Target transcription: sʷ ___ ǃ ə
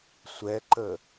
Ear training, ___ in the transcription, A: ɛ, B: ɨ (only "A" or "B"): A